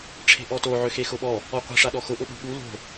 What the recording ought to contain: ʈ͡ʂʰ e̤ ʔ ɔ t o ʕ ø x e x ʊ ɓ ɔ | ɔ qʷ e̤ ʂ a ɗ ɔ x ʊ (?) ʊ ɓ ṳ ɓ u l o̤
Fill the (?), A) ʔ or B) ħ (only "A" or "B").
A